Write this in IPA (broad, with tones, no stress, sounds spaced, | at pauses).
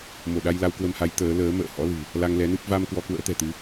m o˧˩ ɗ a˧ j l a˧ w k w ə˧ m h a˨˦ j t̪ əː˨˦ l əː˨˦ m ə̰ː˧˨ h ɔ̰˧˥ l ɨ̤˨˩ | l a˧ ŋ l ɛ˨˦ n ɨ˦˥ p̚ v a˧ m k w ɔ˧ k w ə̰ː˧˥ t̪ ɛ̤˨˩ t̪ ɨ˨˦